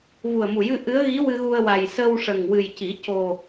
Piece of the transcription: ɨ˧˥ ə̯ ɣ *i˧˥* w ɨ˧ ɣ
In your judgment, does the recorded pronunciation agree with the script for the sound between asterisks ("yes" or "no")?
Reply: yes